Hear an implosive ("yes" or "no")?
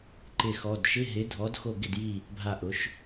no